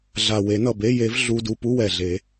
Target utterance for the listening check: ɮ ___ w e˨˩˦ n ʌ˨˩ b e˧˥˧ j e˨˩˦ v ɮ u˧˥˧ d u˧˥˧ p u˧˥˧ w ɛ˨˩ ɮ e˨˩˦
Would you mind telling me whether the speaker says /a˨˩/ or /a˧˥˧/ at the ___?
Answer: a˨˩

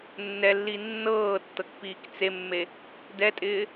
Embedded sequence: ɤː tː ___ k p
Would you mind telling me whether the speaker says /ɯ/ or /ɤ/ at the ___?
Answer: ɤ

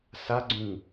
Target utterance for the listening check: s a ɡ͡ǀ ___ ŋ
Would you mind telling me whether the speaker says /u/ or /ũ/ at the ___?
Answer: ũ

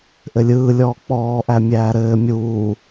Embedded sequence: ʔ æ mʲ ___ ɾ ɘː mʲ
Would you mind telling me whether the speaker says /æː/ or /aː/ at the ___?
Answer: æː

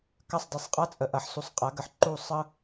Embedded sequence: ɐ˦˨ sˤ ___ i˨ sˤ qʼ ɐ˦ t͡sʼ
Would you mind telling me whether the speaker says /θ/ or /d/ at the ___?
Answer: d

